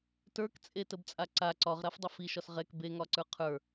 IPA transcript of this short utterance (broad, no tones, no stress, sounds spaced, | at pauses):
t ə˞ k t͡sʼ e t ə b t͡sʼ a ǀ a ǀ ɒ ʁ ɾ a f dˤ ə f i ʃ ɒ s ʁ ɛ k b e ŋ ɒ ǀ ə˞ qʰ ə˞